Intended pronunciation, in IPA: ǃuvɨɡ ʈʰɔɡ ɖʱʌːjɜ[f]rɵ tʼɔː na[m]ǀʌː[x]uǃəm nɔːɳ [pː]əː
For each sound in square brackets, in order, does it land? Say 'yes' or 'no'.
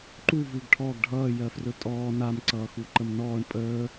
yes, yes, yes, no

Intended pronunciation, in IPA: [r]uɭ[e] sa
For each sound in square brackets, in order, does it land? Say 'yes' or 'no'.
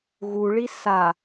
no, no

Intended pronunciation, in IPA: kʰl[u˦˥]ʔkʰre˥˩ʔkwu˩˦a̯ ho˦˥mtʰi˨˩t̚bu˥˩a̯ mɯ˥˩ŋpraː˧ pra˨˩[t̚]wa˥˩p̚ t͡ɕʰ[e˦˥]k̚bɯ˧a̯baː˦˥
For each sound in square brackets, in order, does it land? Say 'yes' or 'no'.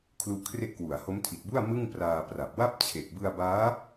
yes, no, no

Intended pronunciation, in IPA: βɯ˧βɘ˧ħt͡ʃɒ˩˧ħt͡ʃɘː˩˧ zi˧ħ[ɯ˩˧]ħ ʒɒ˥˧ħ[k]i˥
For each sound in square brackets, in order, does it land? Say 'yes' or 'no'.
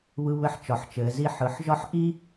yes, no

